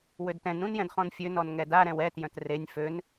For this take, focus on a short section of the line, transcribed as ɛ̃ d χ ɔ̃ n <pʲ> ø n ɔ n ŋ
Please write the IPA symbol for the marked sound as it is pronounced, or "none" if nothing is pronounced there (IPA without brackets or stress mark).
fʲ